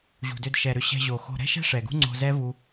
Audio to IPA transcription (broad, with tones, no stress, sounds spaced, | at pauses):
ʑ ṳ˨ d ʏ˧ d ʃ ɛ˧ ɾ ʏ˦ ɕ ɛ̤˧ ʑ o˨ x o̤˧ ɾ ɛ̤˦ ʃ ɛ̤˦ ʂ ɛ˨ ɡ ṳ˦ ŋ͡ǀ o̤˧ z ɛ˦ v u˦